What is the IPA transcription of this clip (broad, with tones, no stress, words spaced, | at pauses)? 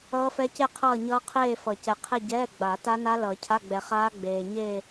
ʌː˦˥fɛ˦˥ce˥˧ qʰʌː˥˧ɲʌː˦˥qʰeː˥˧fʌ˨˩˦ cɛ˨qʰe˥˧ ɟɛː˧˥˧ ɡ͡ba˨˩˦ ta˦˥na˦˥ lʌ˨˩˦cʰa˧˥˧ɡ͡bɛ˨χaː˦˥ ɡ͡beː˨ ɲe˥˧